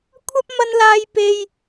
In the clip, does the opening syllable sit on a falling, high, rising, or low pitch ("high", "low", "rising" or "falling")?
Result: high